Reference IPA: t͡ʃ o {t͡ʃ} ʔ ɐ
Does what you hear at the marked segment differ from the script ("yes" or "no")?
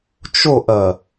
yes